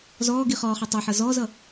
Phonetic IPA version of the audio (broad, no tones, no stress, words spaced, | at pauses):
zɔːɡiχɔːχɑ tˤʌħʌ zɔːzʌ